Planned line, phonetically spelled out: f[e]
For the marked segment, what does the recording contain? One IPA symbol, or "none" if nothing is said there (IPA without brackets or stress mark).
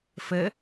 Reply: ɘ